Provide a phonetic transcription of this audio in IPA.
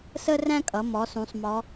s ə˥ r æ̃˥ kʼ ʌ˩˧ m ɔ˩˧ s ũ˩˧ sˤ m ɔ˩˧

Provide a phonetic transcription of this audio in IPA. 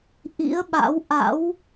ʔ ḭ˧˥ ə̯ ɓ a̰˧˥ w ʔ a̰˧˥ w

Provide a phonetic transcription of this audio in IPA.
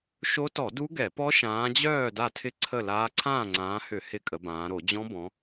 ʃ o˦˥ t ɔ˧˩˧ d u˦˥ ɡ ɛ˧˩˧ p ɔ˦˥ ʃ ãː˨˦ d͡ʑ œː˥˨ d a˥˨ tʰ ɪ˥˨ ǀʰ ə˥˨ l aː˦˥ ǀʰ ãː˥˨ ŋ͡ǀ ãː˨˦ h ʏ˧˩˧ h ɪ˥˨ kʼ ə˨˦ b ãː˨˦ ɾ o˧˩˧ d͡ʑ ɔ̃˦˥ b ɔ̃˨˦

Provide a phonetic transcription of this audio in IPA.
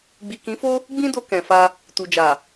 ɡ͡b i˨ k ĩ˨˦ f o˦ | ɡ͡b ĩ˦ d o˧ k ɛ̃˨ f a˧ | t u˨ d͡ʒ a˨

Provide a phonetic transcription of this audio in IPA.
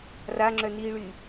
r a ŋ͡ǁ œ n iː ɭ y

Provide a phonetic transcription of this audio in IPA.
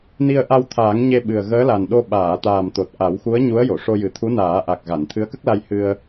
n i˧ ə̯ ʔ a˧ w t̪ʰ aː˨˩˦ ŋ ɲ e˧ ɓ ɨ˨˩ ə̯ ɣ əː˧˥ l a˨˩ n ɗ o˧ ɓ aː˨˩˨ t̪ aː˨˩ m t̪ o˨˩ t̚ ʔ a˨˩˦ w x u˧˥ ə̯ ɲ u˧˥ ə̯ j o˨˩˨ ʂ o˧ j ɨ˨˩ t̪ʰ u˧˥ n aː˨˩˦ ʔ a˨˩ k̚ ɣ a˨˩˨ n t̪ʰ ɨ˧˥ ə̯ k ə˦˥ k̚ l a˧ j h ɨ˧ ə̯

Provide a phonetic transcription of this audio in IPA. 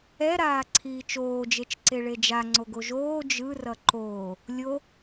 ɛ ɾ aː ǀʰ iː t͡ʃ oː d͡ʒ e t͡ʃ ǀ e ɭ e d͡ʒ a ŋ͡ǀ o ɡ o ʒ oː d͡ʒ ɯ r ʌ ǃ oː | lʲ o

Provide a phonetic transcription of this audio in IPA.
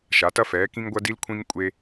ʃ a˩˧ t ɐ˧ f ɛː˩˧ k ĩ˧ ŋ ɡʷ ɐ˧ d i˧ l kʷʰ ĩ˧ ŋ kʷʼ e˧

